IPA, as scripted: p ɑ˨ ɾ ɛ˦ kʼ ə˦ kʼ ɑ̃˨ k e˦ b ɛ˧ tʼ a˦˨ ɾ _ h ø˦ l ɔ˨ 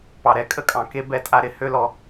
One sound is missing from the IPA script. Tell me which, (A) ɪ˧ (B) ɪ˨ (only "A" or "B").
A